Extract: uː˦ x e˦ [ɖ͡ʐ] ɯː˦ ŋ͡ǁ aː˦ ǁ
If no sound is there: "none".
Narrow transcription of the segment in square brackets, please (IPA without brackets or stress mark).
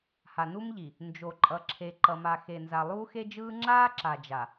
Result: d͡ʒ